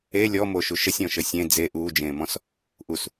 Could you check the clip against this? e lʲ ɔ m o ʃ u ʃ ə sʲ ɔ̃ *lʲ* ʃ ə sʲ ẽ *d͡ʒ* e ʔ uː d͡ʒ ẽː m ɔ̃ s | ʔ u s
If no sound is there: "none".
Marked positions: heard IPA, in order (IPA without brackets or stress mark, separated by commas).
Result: none, d͡z